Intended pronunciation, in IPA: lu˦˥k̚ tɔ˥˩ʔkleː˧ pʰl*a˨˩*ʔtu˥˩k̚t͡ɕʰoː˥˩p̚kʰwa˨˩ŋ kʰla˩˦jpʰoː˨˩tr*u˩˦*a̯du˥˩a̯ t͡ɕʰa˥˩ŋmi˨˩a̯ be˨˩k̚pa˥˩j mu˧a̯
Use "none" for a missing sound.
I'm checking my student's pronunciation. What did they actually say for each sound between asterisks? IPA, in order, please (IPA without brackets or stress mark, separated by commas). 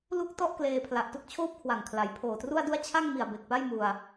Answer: a˨˩, u˥˩